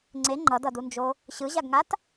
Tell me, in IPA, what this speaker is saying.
ŋ͡ǀe ŋ͡ǃʌdʌdund͡ʒo | ɕɯʑaɡŋat

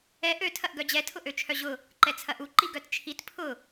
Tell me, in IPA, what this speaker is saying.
ɛ ʔø tʰɐʔɡœd͡ʑɛ tʰʊʔøt͡ʃʰœʑʊ | ǃɛt͡sʰɐʔu ǃiɡœtt͡ʃʰit pʰʊ

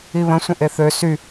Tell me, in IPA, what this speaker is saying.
iβə̃sʷə̃ ʔeθø sy

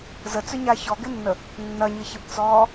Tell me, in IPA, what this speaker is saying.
zət͡sʏɲa çɔɡɪnːə | nːɐɲɪçɪbt͡sɔː

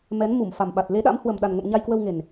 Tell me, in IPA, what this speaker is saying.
mɛ˨˦n mu˧˩mfa˨˩mɓa˨˩t̚ le˨˦ɗa̰˧˥m hwə˨˩mɗa˨˩nŋə̰˧˨m ɲa˧jkwə˧wŋe˨˩n

